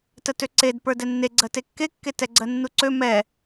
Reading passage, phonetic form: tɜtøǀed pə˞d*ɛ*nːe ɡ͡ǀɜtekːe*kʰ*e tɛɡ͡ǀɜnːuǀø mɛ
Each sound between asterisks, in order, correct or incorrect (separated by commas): correct, incorrect